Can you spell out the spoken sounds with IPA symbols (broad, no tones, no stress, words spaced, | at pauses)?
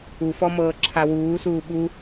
ufɔ mɤːǁʰawuːsuː ɓu